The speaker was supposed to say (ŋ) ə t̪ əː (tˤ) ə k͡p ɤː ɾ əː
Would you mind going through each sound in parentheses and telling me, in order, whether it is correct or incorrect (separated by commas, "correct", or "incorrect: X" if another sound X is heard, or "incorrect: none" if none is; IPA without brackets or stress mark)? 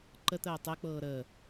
incorrect: ǃ, correct